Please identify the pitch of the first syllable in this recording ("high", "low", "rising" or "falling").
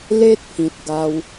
high